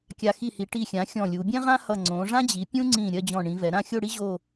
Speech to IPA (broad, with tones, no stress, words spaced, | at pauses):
kʲa˧ xi˧˩hi˩˧ ʈi˧˩xʲã˩˧ xʲɔ̃˧˩lʲu˩˧ bʲɛ̃˥ʁã˥hʌ˧˩ ŋ͡ǀõ˩˧ʐã˥d͡ʑi˩˧ pʲũ˥ŋ͡ǀĩ˧˩ ɾʲɜ˥˧d͡ʑɔ̃˧˩ ɳĩ˩˧vɛ˩˧ ɾã˥˧xʲo˥˧ɽi˥ ʑo˥˧